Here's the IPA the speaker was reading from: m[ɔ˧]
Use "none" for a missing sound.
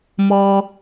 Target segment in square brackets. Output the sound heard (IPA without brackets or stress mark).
ɔ˧